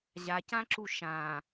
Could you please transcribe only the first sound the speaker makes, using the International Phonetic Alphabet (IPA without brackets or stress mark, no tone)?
ʑ